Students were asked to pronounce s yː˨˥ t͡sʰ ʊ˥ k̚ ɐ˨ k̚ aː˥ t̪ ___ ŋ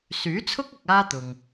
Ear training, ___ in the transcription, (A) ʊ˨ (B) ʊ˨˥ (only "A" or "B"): A